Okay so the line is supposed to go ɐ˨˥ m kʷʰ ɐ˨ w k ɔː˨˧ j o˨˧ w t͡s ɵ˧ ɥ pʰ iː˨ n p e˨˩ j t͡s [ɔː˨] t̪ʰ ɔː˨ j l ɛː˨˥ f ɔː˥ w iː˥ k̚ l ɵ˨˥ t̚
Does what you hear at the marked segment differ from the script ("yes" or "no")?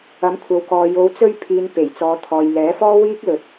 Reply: yes